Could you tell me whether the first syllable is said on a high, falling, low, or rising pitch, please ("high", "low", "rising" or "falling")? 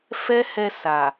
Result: high